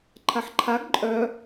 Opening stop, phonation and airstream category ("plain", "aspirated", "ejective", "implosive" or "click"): click